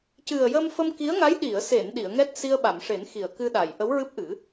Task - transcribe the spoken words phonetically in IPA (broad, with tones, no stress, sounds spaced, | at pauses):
c ɨ˨˩ ə̯ j ə˧ m f ə˧ m k i˧˥ ə̯ ŋ a˧˥ j ɗ i˨˩˨ ə̯ s e˨˩˨ n ɗ i˨˩˨ ə̯ ŋ ɛ˦˥ t̚ s i˧ ə̯ ɓ a˨˩˨ m ʂ e˨˩˦ n x i˨˩˨ ə̯ k ɨ˧ ɗ a˨˩˨ j ʔ ə˧˥ w ɹ ɨ˦˥ p̚ ʔ ɨ˨˩˦